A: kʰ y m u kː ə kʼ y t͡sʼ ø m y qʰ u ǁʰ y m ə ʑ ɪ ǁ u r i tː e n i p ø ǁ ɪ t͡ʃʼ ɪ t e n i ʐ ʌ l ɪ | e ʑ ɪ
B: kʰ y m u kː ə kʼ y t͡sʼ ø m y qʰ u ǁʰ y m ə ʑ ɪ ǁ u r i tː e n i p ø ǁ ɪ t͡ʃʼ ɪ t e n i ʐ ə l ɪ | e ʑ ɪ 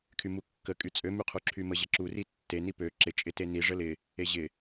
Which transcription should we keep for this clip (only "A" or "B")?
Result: B